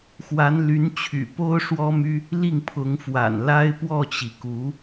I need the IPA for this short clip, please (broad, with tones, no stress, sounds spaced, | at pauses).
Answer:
x w a˧˥ n l y˧˥ n t͡ɕʰ y̰˨˩ p o˥ ʊ̯ ʂ w ɔ˥ m y˥ | l i˥˩ ŋ pʰ ʊ˧˥ ŋ f w a̰˨˩ n l a˥ ɪ̯ p w ɔ˥˩ t͡ɕ i˩ k u˧˥